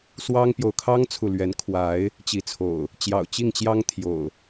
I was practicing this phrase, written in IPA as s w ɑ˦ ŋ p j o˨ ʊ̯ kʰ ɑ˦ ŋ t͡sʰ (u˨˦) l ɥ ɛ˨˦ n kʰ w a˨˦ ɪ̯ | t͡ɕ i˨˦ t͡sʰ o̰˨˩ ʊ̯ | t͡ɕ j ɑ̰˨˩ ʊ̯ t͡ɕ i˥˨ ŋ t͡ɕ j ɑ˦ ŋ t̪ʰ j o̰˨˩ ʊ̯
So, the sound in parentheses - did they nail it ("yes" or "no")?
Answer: no